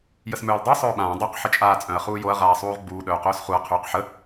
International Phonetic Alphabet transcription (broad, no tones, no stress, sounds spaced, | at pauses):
j ə s m œː l dˤ y sˤ œː ɓ ãː dˤ u q ħ ə t͡ʃʼ aː t͡sʼ œ̃ ɐ̯ χ uː j o ɐ̯ ʁ aː sˤ uː ʁ ɡ͡b uː ɗ œː q œː s χ u ɐ̯ qʰ yː q ħ ə